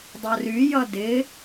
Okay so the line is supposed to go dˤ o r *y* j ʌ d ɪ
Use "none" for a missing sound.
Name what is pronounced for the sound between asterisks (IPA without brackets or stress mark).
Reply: y